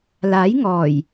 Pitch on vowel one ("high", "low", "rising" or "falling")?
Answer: rising